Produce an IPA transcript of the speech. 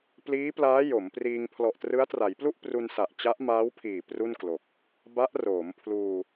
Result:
pliː˦˥plaː˦˥ jo˩˦mpriː˧ŋ pʰlɔ˨˩ʔtrɯ˦˥a̯tra˩˦jplu˥˩ʔ pru˧nsa˨˩ʔ t͡ɕa˦˥ʔmaː˦˥wpʰiː˨˩ pru˥˩nklo˨˩k̚ | ba˦˥ʔroː˩˦mpʰluː˧

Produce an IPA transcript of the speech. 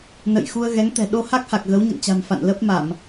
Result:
nə̰˧˨j xu˧ə̯ɣɛ˨˦ŋt̪ɛ̤˨˩ ɗo˧ha˦˥k̚ha˨˩k̚ ɣə˨˦wɲə̰˧˨nt͡ɕa̤˨˩m fa̰˧˨nlə˦˥p̚ma˧˩˨m

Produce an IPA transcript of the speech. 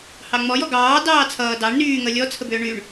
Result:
hɑŋ͡mɔjɔ ɡɑː dɑːt͡sʰʌː dɑɳ nyː ŋʌlʲɔt͡sʰəbʏː ɳyɳ

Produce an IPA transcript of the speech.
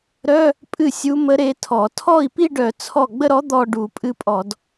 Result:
ɾœ˧˥˧ | pʼɨ˥˩sʲu˧˥mə˧˥ ɾe˧˥tʰɔ˧˩˧ tʰɔ˥˩i̯pi˥˧ɖœ˧˩˧ t͡sʰɔ˥˩ ɡ͡bə˥˧ɾɔ˧˥ d̪ɔ˥˧ ɖu˧˩˧pʼɨ˧˥pʼɔ˧˩˧d

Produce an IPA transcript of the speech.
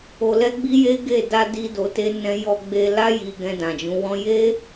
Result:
o˧lɛ˦ɡ͡bi˦je˦ ɡe˦˨ da˧ di˧ do˧te˦nɛ̃˦ jɔ˧ɡ͡be˧la˦ ji˧ɡɛ̃˧ dã˨d͡ʒũ˨˦wɔ̃˦ je˦

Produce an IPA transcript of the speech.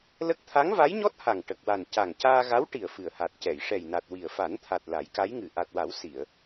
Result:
lə˦˥k̚ t̪ʰa˧˥ŋva˧˥jɲɔ˦˥t̚ha˨˩ŋ ʈə˨˩k̚wa˨˩n ca˨˩ŋcaː˧ɣa˧˥w ʈi˨˩ə̯ fɨ˨˩ə̯ha˨˩t̚cɛ˨˩˨j ʂɛ˨˩jna˨˩t̚ wi˨˩ə̯fa˨˩˦nt̪ʰa˨˩t̚ la˨˩˦jka˧˥jŋɨ˨˩ ʔa˨˩t̚wa˨˩˦w si˨˩˨ə̯

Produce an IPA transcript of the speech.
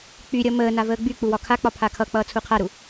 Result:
k͡pyɾʲʌ məː navəːɡ͡byk͡pu wɒkʰak͡pɒ pʰakʰʌk͡pʌː t͡sʰuqʰaɾu

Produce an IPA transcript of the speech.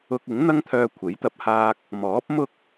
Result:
ʊ˧k̚ɪ˨˥ŋ n̪ɐ˥ŋt̪ʰœː˧kʷʰe˨˥jt̪ɐ˧p̚ haː˥k̚ | mɔː˨˥p̚mʊ˥k̚

